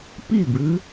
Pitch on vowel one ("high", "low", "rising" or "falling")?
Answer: falling